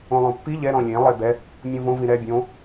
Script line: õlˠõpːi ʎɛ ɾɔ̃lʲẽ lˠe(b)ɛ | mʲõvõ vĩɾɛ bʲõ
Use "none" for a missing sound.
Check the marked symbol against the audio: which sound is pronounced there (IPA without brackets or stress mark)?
b